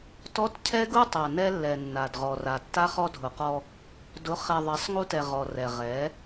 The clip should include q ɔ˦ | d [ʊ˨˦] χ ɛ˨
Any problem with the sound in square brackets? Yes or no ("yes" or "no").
no